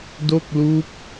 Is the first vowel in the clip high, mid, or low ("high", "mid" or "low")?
mid